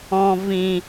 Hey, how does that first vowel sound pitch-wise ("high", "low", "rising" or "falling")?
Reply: low